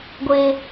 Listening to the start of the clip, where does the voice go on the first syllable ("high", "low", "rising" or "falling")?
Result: high